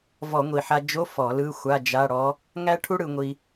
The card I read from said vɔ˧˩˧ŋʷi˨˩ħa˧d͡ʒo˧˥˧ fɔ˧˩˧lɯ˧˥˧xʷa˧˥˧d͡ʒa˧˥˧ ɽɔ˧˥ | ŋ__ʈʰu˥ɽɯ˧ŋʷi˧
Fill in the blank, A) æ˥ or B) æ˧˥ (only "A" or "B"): A